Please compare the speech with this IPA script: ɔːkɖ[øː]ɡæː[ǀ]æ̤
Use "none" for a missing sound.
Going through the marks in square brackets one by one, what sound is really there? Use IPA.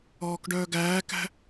œː, k

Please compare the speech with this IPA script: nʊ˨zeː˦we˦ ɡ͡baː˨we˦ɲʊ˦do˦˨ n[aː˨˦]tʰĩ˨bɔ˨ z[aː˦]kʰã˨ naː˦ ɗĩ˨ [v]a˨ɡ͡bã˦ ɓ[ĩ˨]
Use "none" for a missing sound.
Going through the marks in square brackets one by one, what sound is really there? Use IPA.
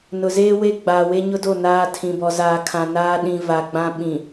aː˦, aː˨, v, ĩ˨

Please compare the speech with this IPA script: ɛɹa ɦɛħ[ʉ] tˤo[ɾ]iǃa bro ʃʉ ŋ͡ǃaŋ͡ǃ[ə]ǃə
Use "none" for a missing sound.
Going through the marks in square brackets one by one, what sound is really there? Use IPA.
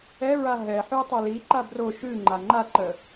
ʉ, l, a

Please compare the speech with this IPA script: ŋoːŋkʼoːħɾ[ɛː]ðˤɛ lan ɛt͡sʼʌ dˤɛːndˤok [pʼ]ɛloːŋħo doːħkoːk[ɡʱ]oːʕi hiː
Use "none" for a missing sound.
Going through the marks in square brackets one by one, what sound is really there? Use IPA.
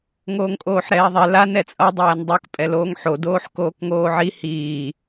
ɛː, pʼ, ŋ

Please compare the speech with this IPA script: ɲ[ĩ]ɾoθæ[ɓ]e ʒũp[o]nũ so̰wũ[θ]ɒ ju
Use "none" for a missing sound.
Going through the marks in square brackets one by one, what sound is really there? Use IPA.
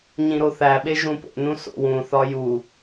ĩ, ɓ, o̰, θ

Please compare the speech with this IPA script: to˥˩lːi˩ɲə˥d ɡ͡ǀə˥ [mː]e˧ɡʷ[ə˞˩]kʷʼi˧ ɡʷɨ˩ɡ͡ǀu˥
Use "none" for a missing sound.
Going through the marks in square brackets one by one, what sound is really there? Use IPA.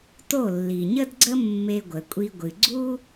mː, ə˩

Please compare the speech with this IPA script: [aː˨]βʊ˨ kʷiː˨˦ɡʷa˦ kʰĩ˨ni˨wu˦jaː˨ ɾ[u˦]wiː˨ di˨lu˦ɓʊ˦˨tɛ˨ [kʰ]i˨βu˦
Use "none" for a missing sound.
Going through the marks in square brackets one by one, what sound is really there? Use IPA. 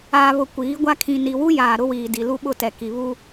aː˨, ʊ˦, k

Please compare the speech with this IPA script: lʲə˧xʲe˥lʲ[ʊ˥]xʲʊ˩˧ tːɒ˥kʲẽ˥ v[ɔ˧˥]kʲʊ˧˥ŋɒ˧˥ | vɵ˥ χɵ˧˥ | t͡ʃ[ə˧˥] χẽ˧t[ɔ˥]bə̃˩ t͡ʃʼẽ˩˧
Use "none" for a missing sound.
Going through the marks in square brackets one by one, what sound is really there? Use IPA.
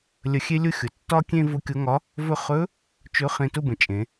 ʊ˥, ʊ˧˥, ɵ˧˥, ʊ˥

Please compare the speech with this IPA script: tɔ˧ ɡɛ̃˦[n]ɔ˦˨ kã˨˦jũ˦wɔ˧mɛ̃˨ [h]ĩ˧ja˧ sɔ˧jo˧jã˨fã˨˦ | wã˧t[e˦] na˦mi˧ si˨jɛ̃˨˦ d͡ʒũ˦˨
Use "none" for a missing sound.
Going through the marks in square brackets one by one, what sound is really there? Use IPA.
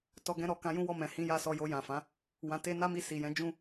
ɾ, h, e˦

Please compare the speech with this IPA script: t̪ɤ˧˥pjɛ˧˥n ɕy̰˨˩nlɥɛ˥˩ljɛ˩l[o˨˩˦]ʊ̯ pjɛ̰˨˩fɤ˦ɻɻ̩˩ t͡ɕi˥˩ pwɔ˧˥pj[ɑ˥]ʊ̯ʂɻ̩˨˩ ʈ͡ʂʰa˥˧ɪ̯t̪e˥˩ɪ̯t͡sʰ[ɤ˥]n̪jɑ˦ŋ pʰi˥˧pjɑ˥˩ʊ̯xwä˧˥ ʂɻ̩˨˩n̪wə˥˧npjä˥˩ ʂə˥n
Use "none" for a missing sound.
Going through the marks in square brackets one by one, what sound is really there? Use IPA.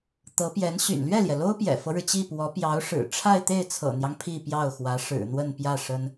o˥, ɑ˧˥, ɤ̰˨˩

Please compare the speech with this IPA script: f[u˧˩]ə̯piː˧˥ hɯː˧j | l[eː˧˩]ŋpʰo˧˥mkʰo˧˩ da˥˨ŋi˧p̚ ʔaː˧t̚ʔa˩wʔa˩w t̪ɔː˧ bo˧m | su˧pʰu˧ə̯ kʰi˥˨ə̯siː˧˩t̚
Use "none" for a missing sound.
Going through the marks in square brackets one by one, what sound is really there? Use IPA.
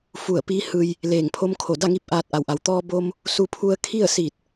u˧˩, eː˧˩

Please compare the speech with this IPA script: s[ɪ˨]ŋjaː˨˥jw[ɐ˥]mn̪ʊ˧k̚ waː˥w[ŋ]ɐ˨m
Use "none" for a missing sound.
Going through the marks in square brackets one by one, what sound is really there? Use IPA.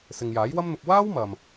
ɪ˨, ɐ˥, m

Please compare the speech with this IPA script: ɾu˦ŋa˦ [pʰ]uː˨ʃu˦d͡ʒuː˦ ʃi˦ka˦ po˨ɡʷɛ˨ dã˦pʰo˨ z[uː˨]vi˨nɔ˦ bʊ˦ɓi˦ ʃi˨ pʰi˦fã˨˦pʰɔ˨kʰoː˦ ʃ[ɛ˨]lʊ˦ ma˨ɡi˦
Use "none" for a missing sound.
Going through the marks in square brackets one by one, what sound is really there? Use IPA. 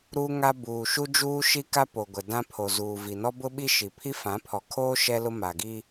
b, uː˨, ɛ˦

